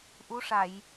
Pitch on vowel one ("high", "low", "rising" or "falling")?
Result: rising